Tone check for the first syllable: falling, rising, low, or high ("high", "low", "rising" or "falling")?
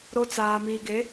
high